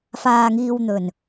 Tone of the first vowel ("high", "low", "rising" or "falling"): low